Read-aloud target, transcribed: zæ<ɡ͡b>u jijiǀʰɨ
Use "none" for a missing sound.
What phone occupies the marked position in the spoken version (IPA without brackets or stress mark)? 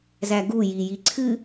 ɡ